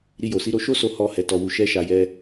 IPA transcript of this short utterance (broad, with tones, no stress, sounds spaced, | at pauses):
ɾ i˧ j o˨ s i˨˦ ɾ o˧ ʃ o˦ s o˧ h ɔ˧ h ɛ˨ t ɔ˨ w u˨ ʃ ɛ˧ ʃ a˨ j ɛ˧